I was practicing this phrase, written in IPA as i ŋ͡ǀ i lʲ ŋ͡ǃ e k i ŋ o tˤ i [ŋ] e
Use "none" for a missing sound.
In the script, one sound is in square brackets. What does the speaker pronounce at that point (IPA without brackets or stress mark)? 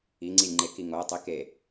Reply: k